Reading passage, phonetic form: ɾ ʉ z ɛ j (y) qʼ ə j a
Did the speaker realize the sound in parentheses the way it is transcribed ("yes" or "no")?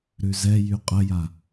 yes